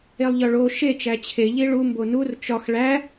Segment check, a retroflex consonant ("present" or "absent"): present